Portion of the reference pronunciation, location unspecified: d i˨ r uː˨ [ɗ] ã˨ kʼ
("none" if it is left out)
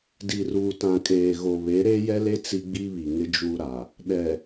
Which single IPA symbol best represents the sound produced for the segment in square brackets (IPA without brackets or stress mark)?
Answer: t